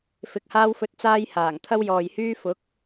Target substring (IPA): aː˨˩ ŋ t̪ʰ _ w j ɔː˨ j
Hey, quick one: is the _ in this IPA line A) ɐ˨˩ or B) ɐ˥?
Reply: B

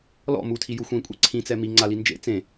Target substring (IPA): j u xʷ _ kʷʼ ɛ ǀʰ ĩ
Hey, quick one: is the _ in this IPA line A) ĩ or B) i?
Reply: A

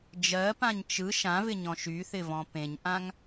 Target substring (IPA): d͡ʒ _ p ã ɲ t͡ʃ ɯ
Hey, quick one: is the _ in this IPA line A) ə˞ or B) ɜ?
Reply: B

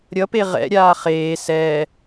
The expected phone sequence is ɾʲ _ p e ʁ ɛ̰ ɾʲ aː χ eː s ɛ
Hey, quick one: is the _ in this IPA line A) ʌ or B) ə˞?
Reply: A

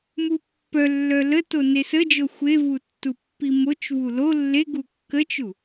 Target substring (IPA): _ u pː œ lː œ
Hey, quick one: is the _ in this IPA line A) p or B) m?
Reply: B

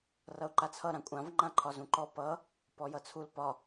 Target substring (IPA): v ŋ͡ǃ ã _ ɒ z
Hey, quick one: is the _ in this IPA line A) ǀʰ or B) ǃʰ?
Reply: B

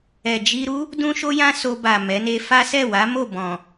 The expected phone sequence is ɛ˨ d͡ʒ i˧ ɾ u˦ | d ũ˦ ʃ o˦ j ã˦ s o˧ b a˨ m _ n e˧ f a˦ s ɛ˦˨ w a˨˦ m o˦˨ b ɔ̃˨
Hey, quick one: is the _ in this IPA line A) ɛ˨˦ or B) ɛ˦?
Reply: A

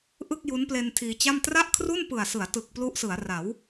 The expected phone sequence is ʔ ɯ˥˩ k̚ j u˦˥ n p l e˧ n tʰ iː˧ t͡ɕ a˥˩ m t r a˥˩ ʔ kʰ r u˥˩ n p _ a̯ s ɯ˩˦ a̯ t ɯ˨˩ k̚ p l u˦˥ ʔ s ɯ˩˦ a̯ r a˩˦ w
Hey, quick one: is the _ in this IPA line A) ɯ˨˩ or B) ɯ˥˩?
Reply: A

